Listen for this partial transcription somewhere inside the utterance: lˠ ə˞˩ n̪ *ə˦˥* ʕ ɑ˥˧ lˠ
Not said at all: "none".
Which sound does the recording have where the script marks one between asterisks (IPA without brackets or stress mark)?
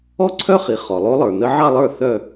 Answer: ə˦˥